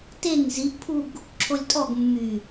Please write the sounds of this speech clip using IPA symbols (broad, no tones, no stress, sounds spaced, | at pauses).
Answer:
t e ŋ z i ʔ pʰ u ɡ | ǁʰ o lʲ tʼ ɔ ɡ mː y